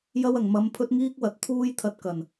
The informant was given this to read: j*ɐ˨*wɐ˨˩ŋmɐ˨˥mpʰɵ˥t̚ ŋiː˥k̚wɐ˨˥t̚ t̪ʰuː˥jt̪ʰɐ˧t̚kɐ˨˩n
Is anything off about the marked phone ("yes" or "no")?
yes